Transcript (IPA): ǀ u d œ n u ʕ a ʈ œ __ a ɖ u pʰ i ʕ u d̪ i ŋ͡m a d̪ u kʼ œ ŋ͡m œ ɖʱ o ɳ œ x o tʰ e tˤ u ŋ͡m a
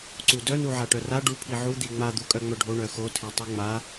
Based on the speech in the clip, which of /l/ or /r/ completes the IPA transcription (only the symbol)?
r